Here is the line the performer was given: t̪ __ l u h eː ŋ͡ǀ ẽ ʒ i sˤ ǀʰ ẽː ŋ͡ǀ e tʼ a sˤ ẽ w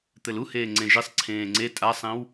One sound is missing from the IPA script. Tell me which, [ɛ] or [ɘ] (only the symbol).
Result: ɘ